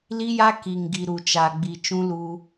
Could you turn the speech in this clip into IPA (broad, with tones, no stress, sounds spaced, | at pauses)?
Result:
l i˦ j a˦ k i˨ ŋ ɡ i˨ ɾ u˨ t͡ʃ a˨ ɡ͡b i˨ t͡ʃ ũ˦ l u˦